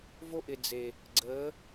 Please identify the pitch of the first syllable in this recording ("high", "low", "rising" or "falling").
high